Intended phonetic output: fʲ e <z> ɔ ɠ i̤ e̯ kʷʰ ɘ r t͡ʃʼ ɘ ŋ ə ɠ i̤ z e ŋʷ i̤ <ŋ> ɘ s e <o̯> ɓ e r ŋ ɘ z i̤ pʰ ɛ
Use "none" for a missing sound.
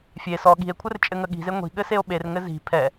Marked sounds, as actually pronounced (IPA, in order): s, ɠ, o̯

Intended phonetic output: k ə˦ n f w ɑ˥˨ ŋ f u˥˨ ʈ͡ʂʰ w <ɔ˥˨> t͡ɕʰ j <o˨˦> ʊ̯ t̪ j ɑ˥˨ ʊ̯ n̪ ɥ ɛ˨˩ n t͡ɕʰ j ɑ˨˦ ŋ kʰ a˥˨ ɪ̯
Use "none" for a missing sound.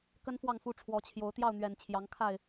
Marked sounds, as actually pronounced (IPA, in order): ɔ˨˦, o˨˦

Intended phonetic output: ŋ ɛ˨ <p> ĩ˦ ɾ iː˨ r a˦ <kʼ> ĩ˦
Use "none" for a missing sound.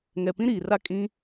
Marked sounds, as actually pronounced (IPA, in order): p, kʼ

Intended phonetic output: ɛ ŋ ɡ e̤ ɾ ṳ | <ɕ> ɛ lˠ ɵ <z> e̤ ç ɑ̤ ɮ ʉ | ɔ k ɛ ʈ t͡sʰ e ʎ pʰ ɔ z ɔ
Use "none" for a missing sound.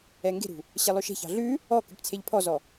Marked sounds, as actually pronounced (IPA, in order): ɕ, ʃ

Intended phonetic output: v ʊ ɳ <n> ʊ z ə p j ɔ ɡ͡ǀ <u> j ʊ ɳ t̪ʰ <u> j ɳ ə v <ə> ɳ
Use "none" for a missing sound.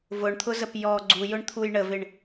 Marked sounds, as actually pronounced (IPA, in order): t̪ʰ, u, u, ɪ

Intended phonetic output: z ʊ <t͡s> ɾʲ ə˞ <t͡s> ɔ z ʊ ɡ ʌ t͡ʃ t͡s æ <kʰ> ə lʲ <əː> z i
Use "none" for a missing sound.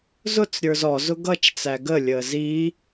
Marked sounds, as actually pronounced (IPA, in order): t͡s, z, ɡ, əː

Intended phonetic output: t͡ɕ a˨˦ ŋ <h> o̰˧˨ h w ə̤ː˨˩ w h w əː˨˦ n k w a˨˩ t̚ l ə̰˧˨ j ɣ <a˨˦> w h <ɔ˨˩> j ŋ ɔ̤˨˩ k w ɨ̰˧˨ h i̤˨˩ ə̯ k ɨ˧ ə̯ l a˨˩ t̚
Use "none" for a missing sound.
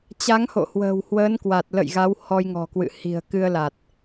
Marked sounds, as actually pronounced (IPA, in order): h, a˨˦, ɔ˧

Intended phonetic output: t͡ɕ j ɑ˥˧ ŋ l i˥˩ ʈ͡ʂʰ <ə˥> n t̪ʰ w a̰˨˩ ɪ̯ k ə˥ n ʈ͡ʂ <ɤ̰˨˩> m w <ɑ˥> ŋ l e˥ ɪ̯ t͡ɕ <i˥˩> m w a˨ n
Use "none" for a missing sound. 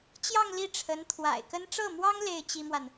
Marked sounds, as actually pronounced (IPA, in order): ə˧˥, ɤ˥˩, ɑ˥, i˥

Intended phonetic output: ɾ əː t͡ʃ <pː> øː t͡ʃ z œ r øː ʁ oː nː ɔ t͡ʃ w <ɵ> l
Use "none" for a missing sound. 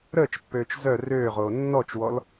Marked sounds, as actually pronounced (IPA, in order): pː, ɔ

